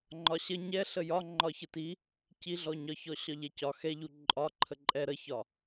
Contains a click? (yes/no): yes